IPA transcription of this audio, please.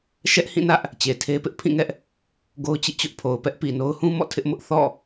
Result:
ʃ ɛ˦ ʔ h ĩ˦˨ n ä˦ ʔ | t͡ɕ e˨ tʰ e˦ p ɪ˦ ʔ pʰ ĩ˦˨ ŋ ɛ˦ ʔ | ɡ o˦ ʊ̯ t͡ɕ ḭ˦˨ t͡ɕ ʊ˦ ʔ pʰ o˨ ʊ̯ p ɛ˦ ʔ p i˨ n o˦ ʊ̯ h ũ˦ m ɔ̰˦˨ tʰ ɪ˦ ʔ m ʊ˦ ʔ θ ɔ̰˦˨

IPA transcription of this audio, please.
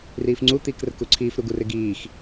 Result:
r iː f ŋ͡ǀ u t̪ iː k r ə̤ k u ǀʰ iː f ɾ u ɡ u r ɪ ɡ iː x

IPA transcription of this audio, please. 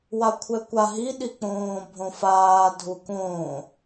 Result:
w a kʷʰ ɛ kʷ a ɦ i ɗ i k͡p õː bʱ õ f aː dʱ u k õː

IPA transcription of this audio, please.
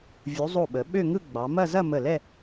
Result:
vʲ u˩˧ zˤ o˧˩ ɓ ə˩˧ ɓ ø˥˧ ŋ ɯ˥˧ ɡ͡b ɑ˩˧ m ɐ˥˧ z ɐ˥˧ m ə˧˩ l ɛ˥˧

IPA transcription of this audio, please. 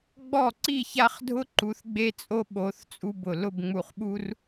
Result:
ɡ͡b ɔ˥˩ ǀ i˥˩ ç a˦ χ dʱ ʊ˦ ǃ u˨˦ θ ɡ͡b e˦ t͡sʼ o˦ ɓ o˨˦ θ t͡sʼ u˦ b ʊ˧˩ l ʊ˥˩ b ŋ͡m u˧˩ χ ɓ u˦ r

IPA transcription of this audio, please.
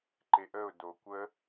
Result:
ǃ e ʔ ə ʊ̯ d o kʷ ə

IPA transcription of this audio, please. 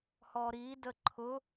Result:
h ɔ ɾ i d ə ǃʰ ʊ

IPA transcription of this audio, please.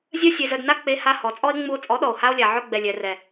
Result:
zʲ œ˦ sʲ e˧ z œ˧ d n a˦ k͡p e˧ h a˧ h ɔ˨˦ t͡sʼ ɔ˦ e̯ ŋ͡m u˧ o̯ t͡sʼ ɔ˨˦ ɗ ɔ˨ o̯ h a˧ o̯ lʲ a˨ ʕ œ˧ ɡ͡b ɛ˨ lʲ ɛ˨ r ɛ˨

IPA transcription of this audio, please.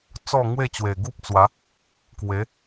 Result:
t͡s ɔ˥˧ ŋ w e˥˧ t͡ɕ w e˨˩ ɡ u˦ p̚ t͡s w a˨˦ | k w e˨˦

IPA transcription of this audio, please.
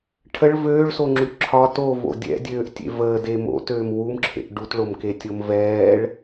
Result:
ʈʰ ə ɭ v øː ɭ s o ŋ͡ǁ ʉ ǁʰ ɒ t o v o̰ dʲ ɛ̰ dʲ øː ʔ tʲ ḛ v əː d e m o̰ t øː m w u m ǁʰ ḛ ʔ ɖ u t ɭ o m k e tʲ o m v ɛː ɭ

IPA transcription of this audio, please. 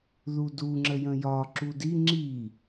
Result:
ð u d u ŋ͡ǁ ə j ə̃ j ɒ ǁ u d i ŋ͡ǁ i

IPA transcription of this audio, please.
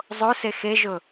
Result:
zˤ o s e x e ʒ ʊ

